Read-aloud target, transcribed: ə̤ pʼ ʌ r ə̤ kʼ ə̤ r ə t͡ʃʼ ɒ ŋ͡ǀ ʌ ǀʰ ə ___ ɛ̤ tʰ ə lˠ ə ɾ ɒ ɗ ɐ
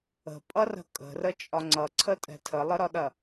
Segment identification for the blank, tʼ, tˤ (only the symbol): tʼ